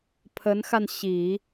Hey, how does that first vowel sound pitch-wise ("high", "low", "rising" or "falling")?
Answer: rising